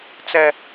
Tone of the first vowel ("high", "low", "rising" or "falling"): high